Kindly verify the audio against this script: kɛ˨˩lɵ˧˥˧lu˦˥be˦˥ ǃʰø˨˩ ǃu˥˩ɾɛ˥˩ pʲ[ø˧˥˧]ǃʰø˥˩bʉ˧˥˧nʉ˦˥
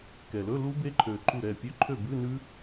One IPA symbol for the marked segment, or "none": ø˧˥˧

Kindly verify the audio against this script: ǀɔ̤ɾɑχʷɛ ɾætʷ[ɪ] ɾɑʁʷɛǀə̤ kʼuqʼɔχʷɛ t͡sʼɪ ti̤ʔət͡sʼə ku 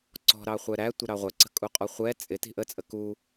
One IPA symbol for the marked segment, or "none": i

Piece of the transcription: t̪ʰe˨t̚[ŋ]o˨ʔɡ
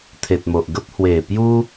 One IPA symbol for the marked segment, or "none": m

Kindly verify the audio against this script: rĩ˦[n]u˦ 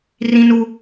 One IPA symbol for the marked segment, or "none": n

